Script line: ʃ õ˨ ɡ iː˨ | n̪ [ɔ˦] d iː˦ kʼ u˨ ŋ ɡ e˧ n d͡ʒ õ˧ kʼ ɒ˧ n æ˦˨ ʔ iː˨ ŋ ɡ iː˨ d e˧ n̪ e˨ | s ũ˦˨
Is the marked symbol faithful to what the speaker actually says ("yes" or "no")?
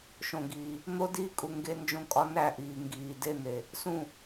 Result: no